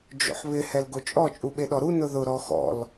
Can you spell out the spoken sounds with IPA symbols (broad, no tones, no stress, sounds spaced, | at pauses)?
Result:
d͡ʒ o̰ ħ β ɪ h ɛ l ɡ o t͡ʃʼ ɔ t͡ʃʼ u ɓ e ɗ ɔ ɾ u n ʊ ð ʊ ɾ ɔ x ɔ̰ l